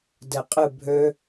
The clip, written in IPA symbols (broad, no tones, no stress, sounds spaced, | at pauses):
d ɛ qʼ ɨ bʱ ø